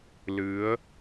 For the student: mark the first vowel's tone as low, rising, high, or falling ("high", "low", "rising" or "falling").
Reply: rising